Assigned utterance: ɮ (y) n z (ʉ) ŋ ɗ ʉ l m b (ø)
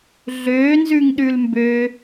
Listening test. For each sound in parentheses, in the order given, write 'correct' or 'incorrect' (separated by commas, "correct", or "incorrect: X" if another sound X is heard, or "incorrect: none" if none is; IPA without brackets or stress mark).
incorrect: ø, correct, correct